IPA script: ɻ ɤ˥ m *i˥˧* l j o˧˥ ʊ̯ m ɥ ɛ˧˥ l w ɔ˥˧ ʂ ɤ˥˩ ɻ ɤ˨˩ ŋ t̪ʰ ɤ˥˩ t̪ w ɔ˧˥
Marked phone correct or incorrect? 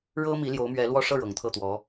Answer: incorrect